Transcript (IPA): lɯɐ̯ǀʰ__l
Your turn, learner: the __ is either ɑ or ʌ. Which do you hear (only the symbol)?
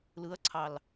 ɑ